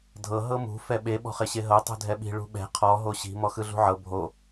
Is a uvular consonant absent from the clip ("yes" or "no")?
no